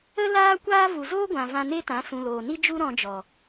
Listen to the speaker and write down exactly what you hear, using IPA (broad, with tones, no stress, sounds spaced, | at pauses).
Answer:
ə˦ l aː˦ kʷ aː˦ v u˨ z oː˦ ɡʷ ã˨ v ã˧ n e˦ t ã˨˦ s ũ˨ l oː˨ n i˦ d͡ʒ u˦ ɾ ɔ̃˧ d͡ʒ ɔ˨